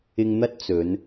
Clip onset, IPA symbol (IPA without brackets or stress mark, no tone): ɪ